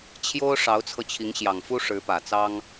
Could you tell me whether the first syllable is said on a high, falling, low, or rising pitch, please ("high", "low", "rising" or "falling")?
high